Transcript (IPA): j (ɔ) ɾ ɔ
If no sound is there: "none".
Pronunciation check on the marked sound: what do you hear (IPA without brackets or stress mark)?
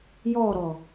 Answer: ɔ